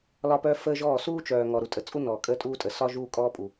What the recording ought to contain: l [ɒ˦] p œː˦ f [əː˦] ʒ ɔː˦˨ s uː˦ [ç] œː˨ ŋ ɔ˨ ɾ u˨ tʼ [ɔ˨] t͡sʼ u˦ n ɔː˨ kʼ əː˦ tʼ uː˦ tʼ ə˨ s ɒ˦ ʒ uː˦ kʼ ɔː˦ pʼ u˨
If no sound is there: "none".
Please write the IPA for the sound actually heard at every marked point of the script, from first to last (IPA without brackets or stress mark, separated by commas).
ɒ˦, əː˦, t͡ʃ, ə˨